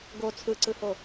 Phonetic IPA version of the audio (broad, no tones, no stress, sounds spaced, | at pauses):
ɡ o t͡sʰ ɯ ǀ ɯ h o